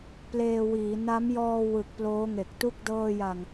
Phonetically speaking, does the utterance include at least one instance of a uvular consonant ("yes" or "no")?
no